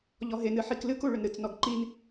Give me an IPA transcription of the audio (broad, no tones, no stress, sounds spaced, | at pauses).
ʎ ɔ ɦ e n ɨ ħ i k l ɨ k u ɭ ʏ n ɾ ɨ t͡s n ɔ ɡ ǃ i n